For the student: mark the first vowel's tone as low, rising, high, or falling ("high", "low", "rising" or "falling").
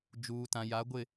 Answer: low